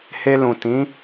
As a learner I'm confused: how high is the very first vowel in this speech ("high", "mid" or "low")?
mid